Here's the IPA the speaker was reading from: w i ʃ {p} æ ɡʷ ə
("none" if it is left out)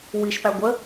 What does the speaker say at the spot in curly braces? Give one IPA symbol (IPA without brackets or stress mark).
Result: p